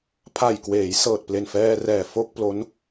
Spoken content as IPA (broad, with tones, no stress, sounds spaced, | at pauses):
pʰ a˨˩ j k w eː˩˦ j s ɤː˨˩ t̚ p l e˨˩ n f ɛː˧ r ɛː˨˩ f o˥˩ k̚ p l o˦˥ n